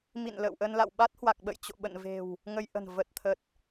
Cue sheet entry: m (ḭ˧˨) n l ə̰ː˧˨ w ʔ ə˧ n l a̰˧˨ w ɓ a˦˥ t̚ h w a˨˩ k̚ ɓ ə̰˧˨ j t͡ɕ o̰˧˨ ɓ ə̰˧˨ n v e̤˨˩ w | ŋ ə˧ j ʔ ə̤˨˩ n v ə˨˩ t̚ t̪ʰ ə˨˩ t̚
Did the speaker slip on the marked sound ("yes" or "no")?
no